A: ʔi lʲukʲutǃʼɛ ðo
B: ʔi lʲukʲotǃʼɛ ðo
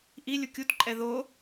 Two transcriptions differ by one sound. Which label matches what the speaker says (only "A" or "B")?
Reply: A